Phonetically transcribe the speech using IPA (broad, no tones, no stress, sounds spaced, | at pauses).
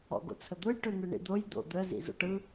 ɔ̰ ɡ o̰ t͡sʰ ə d̪ o j ʈ ø n̪ ɯ ɳ ḭ d̪ o j d̪ o̰ d̪ ə z ḭ z o̰ ʈ ɯ